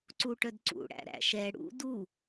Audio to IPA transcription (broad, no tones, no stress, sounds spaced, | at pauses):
ǀ u ʈ œ d ǀ ṵ ɽ æ̰ ɾ æ̰ ʃ ɛ ɽ ṵ d u